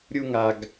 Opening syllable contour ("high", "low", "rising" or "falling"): high